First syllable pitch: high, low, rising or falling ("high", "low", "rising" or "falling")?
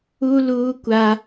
high